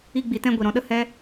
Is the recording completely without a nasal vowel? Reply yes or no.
no